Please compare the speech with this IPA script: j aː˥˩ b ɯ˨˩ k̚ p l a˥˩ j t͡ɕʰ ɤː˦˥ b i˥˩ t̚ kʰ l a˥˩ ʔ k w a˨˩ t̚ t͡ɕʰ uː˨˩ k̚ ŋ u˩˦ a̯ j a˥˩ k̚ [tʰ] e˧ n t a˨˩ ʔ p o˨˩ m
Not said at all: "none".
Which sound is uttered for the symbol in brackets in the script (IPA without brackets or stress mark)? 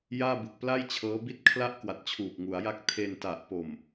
tʰ